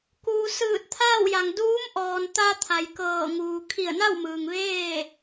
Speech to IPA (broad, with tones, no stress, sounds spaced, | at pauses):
k uː˩ s ɯː˧˩ t̚ t̪ʰ aː˥˨ w j a˩ ŋ d uː˧˥ m ʔ ɔː˩ n t̪ a˧ t̪ʰ a˩ j k ɤː˧˩ ŋ uː˩ kʰ i˧˩ ə̯ n a˥˨ w m ɯː˩ ŋ ʋ eː˥˨